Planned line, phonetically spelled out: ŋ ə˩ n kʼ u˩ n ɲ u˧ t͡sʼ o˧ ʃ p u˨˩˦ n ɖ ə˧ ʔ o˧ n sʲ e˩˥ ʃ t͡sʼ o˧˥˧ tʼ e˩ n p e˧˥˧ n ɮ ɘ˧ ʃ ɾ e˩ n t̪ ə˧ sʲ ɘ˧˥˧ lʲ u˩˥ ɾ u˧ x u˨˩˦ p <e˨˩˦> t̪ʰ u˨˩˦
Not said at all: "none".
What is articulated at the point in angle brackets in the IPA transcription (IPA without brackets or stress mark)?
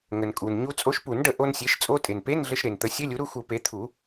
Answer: e˩˥